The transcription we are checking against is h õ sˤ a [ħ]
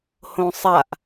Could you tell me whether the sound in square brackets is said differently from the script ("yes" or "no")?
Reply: yes